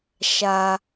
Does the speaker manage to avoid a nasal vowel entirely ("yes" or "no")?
yes